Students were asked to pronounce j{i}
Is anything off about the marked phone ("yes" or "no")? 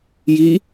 no